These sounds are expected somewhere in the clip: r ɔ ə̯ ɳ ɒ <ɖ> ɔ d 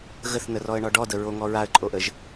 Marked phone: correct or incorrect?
correct